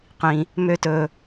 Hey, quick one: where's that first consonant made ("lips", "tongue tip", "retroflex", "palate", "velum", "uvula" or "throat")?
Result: uvula